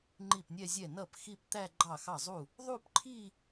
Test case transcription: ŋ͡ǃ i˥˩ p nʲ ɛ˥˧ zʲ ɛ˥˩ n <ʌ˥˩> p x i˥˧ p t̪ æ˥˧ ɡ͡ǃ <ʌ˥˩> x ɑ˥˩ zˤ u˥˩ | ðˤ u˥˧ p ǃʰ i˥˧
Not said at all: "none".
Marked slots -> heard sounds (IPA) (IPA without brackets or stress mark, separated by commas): ʌ˥˩, ɑ˥˩